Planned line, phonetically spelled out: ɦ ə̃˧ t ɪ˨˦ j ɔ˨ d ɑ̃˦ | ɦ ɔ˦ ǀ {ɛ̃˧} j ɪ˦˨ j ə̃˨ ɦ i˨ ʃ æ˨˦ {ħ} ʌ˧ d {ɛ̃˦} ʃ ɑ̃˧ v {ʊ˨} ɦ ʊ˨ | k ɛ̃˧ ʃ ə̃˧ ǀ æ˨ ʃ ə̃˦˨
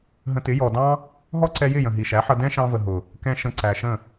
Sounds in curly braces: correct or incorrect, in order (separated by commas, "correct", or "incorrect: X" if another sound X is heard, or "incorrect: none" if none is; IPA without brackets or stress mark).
incorrect: ɛ˧, correct, correct, incorrect: ə˨